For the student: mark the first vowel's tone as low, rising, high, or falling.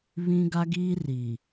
high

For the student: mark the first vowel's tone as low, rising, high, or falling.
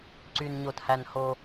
low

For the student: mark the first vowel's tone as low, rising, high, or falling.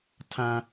low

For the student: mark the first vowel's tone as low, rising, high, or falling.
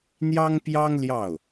high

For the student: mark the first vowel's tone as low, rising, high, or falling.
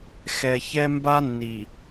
low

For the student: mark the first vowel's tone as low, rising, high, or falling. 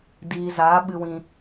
low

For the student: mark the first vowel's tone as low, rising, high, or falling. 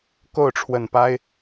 falling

